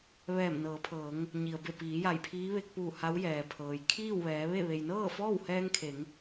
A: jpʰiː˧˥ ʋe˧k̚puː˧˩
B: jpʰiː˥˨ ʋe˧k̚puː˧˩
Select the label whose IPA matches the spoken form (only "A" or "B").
A